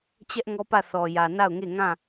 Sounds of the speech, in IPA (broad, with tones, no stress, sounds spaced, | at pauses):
t͡ɕ ɛ˦ ʔ ŋ ɔ˦ p ä˦˨ θ ɔ˨ j ä˨ n a˦˨ ʊ̯ ŋ e˦˨ ŋ ã˦˨